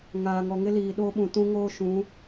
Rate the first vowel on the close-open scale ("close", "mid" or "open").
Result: open